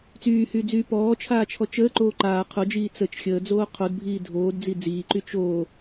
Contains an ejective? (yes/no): no